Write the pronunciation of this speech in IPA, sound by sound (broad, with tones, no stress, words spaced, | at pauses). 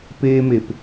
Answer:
peː˧me˩p